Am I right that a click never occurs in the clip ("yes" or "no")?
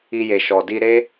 yes